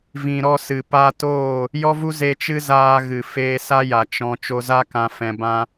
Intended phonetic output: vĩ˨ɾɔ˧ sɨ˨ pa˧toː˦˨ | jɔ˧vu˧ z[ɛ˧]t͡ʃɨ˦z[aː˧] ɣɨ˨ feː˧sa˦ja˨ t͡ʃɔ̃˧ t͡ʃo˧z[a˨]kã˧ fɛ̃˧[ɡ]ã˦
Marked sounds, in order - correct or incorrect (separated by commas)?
incorrect, correct, incorrect, incorrect